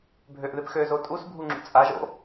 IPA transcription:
bʱ ø ʔ ð ɪ p x ø z o tʼ u s bʱ u ŋ͡ǁ ṵ t͡sʼ a ʒ o̰

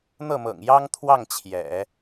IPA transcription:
n̪ ɤ˥˩ m ɤ̰˨˩ ŋ j ɑ˥ ŋ t̪ʰ w ɑ˥˩ ŋ t͡ɕʰ j ɛ̰˨˩˦

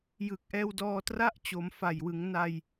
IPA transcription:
j ɯ˨˩ k̚ ʔ ɛː˧ w d ɔː˧ t r a˥˩ ʔ t͡ɕ o˩˦ m f a˨˩ j w ɯ˩˦ ŋ n a˧ j

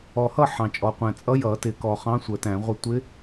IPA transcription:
ɔ˨ h ʌ˥˨ ħ ɑ̃˨ t͡ʃʼ ɔ˨ qʷ æ̃˨ t͡sʼ ʌ˧˥ j ʌ˨˩˦ t ɪ˨˩˦ k ɔ˨ χ ɑ̃˧˥ sʷ ə˨˩˦ t æ̃˨˩˦ ʁʷ ʌ˥˨ tʷ ɪ˧˥

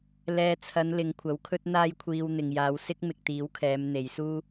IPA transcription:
l ɛː˨ t͡sʰ ɐ˨˧ n l ɪ˨˧ ŋ kʷʰ ɐ˨˥ w kʰ ɵ˥ t̚ n̪ aː˧ j kʷʰ iː˨ w n̪ ɪ˨ ŋ j aː˨˧ w s ɪ˥ k̚ m ɪ˨ k̚ t̪ iː˨˥ w kʰ ɛː˨˧ m n̪ e˨˧ j s uː˥

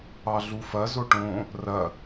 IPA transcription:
ɑ ɮ u f ɐ z o ʈ õ | r ɐ

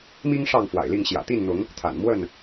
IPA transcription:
m i˦ ŋ ʂ ɑ˥˨ ŋ f w a̰˨˩ ɪ̯ l i˥˨ ŋ ɕ j ä̰˨˩ t̪ i˥˨ n n̪ ʊ˨˦ ŋ | t̪ʰ a̰˨˩ n m w ə˥˨ n

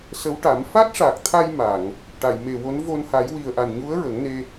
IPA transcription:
s ə˧˥ w ʈ a˨˩˦ m f a˦˥ t̚ ʂ a˨˩ k̚ t̪ʰ a˧ j m a˨˩˨ ŋ | ʈ a˨˩˨ j m e˨˩ w o˧˥ n v o˧ n h a˨˩˦ j w i˨˩ ə̯ ʔ a˨˩ n ɲ u˧˥ ə̯ ɹ ə˨˩˦ ŋ n e˧

